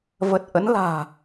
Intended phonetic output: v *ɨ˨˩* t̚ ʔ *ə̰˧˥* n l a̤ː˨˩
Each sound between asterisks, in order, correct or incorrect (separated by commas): incorrect, correct